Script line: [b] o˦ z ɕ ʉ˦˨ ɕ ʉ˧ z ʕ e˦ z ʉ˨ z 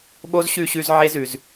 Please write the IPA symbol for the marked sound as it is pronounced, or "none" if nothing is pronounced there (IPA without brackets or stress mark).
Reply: ɓ